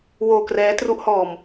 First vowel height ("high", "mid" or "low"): mid